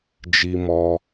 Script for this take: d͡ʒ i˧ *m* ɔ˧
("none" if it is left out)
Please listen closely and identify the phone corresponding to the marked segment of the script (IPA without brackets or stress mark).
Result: m